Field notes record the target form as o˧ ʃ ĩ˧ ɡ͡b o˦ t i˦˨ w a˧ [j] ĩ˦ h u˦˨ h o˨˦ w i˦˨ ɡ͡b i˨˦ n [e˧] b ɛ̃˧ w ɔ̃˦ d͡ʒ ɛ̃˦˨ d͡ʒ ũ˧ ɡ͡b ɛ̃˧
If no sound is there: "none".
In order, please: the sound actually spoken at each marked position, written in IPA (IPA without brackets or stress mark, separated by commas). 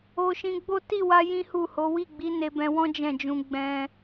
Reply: j, e˧